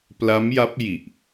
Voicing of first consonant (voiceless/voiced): voiceless